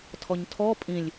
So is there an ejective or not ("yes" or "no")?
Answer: yes